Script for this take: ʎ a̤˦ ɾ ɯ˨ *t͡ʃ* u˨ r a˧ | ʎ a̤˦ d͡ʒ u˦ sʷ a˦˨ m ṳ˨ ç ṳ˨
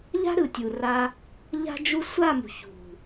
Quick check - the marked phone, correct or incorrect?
incorrect